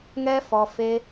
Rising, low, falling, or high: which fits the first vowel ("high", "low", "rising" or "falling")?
high